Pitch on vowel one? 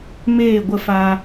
falling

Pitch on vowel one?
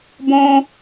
high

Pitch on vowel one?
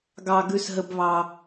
high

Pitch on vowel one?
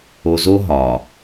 low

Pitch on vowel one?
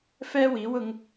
high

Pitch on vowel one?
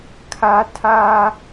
high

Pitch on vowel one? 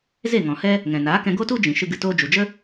falling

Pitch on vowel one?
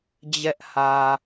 high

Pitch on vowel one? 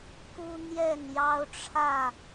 high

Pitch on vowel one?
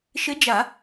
rising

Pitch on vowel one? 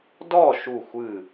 falling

